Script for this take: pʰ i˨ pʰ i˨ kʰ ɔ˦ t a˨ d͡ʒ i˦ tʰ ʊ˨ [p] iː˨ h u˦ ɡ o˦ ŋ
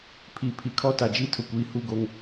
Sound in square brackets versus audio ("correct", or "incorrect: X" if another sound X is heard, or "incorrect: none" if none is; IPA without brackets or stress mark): incorrect: kʷ